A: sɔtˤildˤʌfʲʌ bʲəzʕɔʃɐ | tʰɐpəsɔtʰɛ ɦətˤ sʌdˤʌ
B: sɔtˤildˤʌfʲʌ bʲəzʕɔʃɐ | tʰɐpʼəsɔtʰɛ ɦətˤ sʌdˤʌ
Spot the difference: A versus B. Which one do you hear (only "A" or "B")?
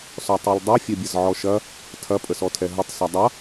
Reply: B